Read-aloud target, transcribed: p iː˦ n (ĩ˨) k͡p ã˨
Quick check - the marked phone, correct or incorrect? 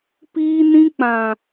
incorrect